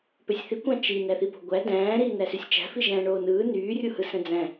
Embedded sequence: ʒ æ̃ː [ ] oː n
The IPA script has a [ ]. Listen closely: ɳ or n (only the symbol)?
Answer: ɳ